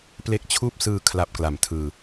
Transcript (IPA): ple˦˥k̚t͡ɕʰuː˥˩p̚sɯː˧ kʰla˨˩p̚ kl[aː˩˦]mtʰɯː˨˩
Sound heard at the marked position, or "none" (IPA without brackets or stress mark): a˩˦